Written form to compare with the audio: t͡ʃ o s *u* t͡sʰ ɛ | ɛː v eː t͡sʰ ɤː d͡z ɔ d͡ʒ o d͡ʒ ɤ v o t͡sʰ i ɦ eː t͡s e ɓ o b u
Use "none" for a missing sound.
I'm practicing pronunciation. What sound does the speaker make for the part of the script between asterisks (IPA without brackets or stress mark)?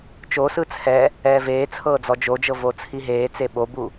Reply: ɯ